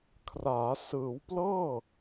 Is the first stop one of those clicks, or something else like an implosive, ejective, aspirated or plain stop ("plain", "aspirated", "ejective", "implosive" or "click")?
aspirated